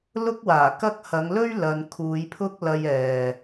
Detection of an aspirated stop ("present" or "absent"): present